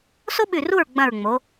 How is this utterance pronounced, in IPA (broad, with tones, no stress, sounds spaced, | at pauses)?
s o˥ ɓ ʉ˧˩ r u˥˨ ɹ ɡ͡b ɐ̃˧˩ ɹ ŋ͡m o˩˧